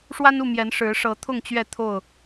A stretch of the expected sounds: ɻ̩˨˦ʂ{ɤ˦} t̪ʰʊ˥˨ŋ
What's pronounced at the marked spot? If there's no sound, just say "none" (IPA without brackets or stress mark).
ɤ˨˦